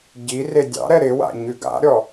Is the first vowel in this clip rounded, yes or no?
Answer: no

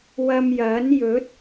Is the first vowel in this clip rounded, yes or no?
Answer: no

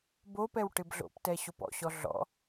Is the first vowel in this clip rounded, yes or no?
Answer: yes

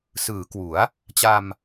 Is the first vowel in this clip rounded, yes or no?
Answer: no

